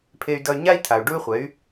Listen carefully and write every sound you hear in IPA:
pʰ e˧ y̯ d ʌ˧ y̯ ɲ a˦ i̯ tʰ a˨ u̯ ɖ u˦ y̯ χʷ ɛ˨˦ y̯

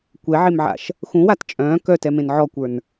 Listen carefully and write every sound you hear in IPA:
kʷ ɛ ʕ e m ʕ a̰ ʃ | x ũ w a t t͡ʃʼ œ̃ː k œ t ɛ m ẽ n ʕ ɔ kʷ ə˞ n

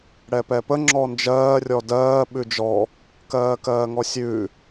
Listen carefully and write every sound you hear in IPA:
ɽ ɛ p ɛ p ə ŋ͡ǁ ɔ n d͡ʒ ɜː rʲ ɔ d ɜː ɓ ʉ d͡ʒ ɔ | k ɜː k ɜː ŋ ɔ sʲ ʉ

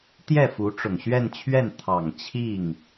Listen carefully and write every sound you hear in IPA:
t̪ j ɛ˥˩ f u˧˥ ʈ͡ʂ ʊ˨˩ ŋ ɕ ɥ ɛ˥˧ n t͡ɕʰ ɥ ɛ˥˩ n t̪ʰ ɑ˨˩ ŋ t͡ɕʰ i˥˩ ŋ

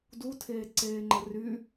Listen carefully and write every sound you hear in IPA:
d u tʰ eː ǀ eː ŋ͡ǃ ə r y

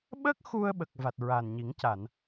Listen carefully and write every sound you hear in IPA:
ɓ əː˦˥ k̚ x u˧ ə̯ ɓ ə˨˩ k̚ v a˨˩ t̚ ɹ a˨˩ n ɲ i˨˩˦ ŋ c a˨˩˨ n

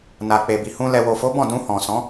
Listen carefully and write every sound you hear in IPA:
n a˨ k͡p e˨ b i˨ h ũ˧ l ɛ˨ w o˨ f o˨˦ b ɔ̃˦˨ d ũ˧ h ɔ̃˨ s ɔ̃˨˦

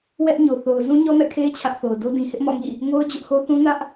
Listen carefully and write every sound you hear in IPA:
w ɛ˦ ʔ ɲ o˨ θ o˨ ʊ̯ z ũ˦ ɲ ɔ˦ m ɛ̰˦˨ kʰ e˦ ɪ̯ t͡ɕʰ ä˦ ʔ θ o˨ ʊ̯ d o˦ d ĩ˨ h ɪ˦ ʔ m ɔ̰˦˨ ŋ ḭ˦˨ | ŋ o˦ ʊ̯ d͡ʑ ʊ˦ ʔ h o˦ θ ũ˦ n ä˦ ʔ

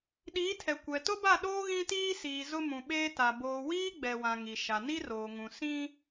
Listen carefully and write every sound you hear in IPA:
ɗ iː˨˦ tʰ ɛ˨ kʷ ɛ˨ t ʊ˦ b a˦˨ ɗ oː˦ ɣ ĩ˦ t iː˦ s iː˨ z ʊ˦ m ũ˨ ɓ eː˦ t a˨ b oː˨ w iː˦ ɡ͡b ɛ˨ w ã˨ ŋ i˨ ʃ a˨ n i˦ r oː˨ ŋ ũ˨ s ĩ˦

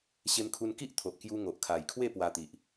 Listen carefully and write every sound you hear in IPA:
ɕ e˧ m kʰ u˧ n k i˦ ʔ t̪ʰ o˨ ʔ k j u˧ ŋ o˨ ʔ kʰ a˨˩ j kʰ w e˥˧ p w a˧ t̪ i˨ ʔ

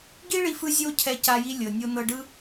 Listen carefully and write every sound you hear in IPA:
ɡ i˦ ɭ i˦ f ɯ˦ zʲ o˦ cʰ ɛ˧ c a˧ j i˧ lʲ ɤ˨ nʲ o˧ n ɤ˧ ɖ ɯ˦

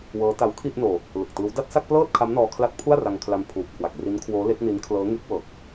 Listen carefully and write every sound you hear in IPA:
w ɤː˦˥ t a˦˥ w kʰ i˥˩ ʔ n oː˧ | l ɯ˨˩ k̚ t ɯː˦˥ w d a˥˩ t̚ s a˥˩ k̚ p l ɤː˥˩ t̚ kʰ a˦˥ m n ɔː˧ kʰ l a˦˥ t̚ pʰ u˥˩ a̯ r a˧ ŋ kʰ l a˧ m pʰ uː˨˩ p̚ kʰ w a˨˩ k̚ r i˦˥ n kʰ w oː˦˥ l e˦˥ k̚ n i˦˥ n kʰ l ɤː˦˥ ŋ e˦˥ k̚ w ɤː˨˩ k̚

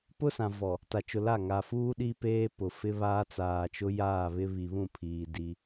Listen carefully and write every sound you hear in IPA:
p ʊ˦ s ã˨ v ɔ˨ | t a˨ t͡ʃ ʊ˨ l a˦˨ ŋ a˨ f uː˦ ɗ i˦ p eː˦ p ʊ˨ f ɪ˦ β aː˦ t͡s aː˨ t͡ʃ ʊ˦ j aː˦˨ β ɪ˦ β i˨ β ũ˦˨ pʰ iː˨ d i˦

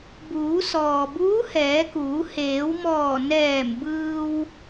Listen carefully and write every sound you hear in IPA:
b uː˩˧ s ɔː˩ b uː˧˥ h ɛː˩˧ k uː˩˧ h eː˩˧ w m ɔː˧˩ n ɛː˧˩ m b ɯː˧ w

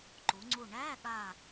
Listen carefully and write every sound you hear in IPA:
ǃ u˩˧ ŋ͡ǀ u˧˩ ɳ æː˧˥˧ ɠ aː˧˩

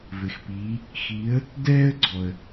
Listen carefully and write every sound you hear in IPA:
v ɘ˨ x p iː˨˦ | x iː˨˦ ə̯ | d ɛː˦ ə̯ ɡ͡ǀ ɔ˨ ə̯

